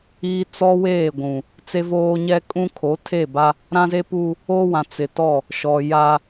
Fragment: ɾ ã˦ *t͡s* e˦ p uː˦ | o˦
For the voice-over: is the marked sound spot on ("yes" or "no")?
no